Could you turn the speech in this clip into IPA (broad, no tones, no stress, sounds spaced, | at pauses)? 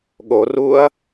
ɠ o r u ɐ̯